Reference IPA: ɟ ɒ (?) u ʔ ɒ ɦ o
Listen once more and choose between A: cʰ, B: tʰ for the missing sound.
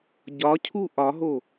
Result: A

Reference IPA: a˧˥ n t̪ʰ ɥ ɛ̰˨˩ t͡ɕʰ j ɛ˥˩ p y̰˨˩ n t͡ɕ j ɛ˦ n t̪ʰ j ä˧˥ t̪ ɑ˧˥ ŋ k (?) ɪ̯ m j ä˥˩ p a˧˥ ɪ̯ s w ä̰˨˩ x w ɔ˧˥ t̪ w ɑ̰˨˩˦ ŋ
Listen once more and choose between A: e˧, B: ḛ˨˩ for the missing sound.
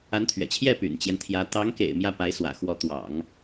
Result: B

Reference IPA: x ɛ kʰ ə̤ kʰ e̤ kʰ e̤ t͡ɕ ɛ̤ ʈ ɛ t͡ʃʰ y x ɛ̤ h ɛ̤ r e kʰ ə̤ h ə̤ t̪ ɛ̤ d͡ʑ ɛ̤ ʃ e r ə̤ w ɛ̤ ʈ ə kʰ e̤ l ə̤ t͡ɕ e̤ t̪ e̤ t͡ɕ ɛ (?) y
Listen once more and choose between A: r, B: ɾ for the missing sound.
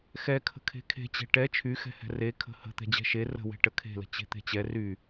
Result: A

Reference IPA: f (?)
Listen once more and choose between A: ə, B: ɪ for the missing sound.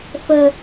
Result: A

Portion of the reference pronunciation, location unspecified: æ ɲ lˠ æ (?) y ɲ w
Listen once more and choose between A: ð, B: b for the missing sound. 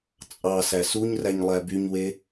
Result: B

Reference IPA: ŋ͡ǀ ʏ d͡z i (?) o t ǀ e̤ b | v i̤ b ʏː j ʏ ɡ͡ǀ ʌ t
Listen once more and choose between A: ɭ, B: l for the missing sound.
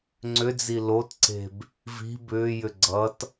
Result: B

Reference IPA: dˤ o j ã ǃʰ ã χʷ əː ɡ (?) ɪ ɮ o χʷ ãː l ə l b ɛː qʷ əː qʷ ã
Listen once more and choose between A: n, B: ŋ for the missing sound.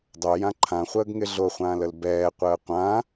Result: B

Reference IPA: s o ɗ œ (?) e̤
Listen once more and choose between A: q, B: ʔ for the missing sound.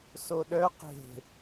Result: A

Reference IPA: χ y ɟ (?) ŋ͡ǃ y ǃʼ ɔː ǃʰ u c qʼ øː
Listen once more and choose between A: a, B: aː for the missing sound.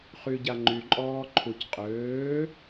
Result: A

